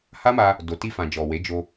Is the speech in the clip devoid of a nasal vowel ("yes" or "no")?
no